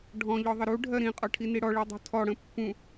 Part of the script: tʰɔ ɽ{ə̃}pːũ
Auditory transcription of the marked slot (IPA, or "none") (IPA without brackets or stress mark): ə̃